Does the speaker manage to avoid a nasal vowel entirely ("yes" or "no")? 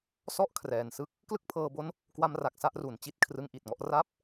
yes